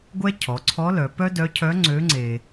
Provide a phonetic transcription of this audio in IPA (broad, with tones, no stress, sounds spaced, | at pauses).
ɡʷ ɛ˥ cʰ ɔ˩˧ ǀʰ ɔ˧˥ l œ˩˧ p œ˥ d œ˧˥ cʰ œ˧˥ ŋ͡ǀ ø˧˥ ŋ͡ǀ e˧